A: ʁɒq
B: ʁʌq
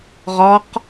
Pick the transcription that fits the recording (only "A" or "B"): A